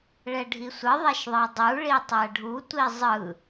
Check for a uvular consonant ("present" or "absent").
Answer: absent